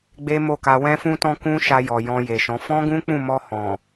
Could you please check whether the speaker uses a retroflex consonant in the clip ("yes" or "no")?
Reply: no